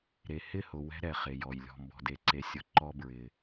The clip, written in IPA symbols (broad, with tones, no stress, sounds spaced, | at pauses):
ɾ e˨ h ɪ˦˨ h ʊ˨ w ɛ̤˦ ɾ ɛ˨ χ e˨ j ɔ˨ j lʲ ɔ̤˨ m b ɔ̤˨ d e˨ ǀ e˨ sʲ ʊ˨ ǃ ɔ˦ b ɹ ɪ˨